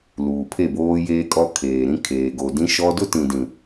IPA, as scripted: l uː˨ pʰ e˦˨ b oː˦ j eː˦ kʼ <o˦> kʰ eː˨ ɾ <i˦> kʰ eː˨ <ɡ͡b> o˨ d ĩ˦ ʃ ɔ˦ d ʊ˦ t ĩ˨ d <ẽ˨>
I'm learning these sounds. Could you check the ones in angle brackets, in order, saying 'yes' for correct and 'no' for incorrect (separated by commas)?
no, no, no, no